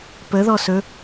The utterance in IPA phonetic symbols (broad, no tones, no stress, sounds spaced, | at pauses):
p ə ð ɔ s ɵ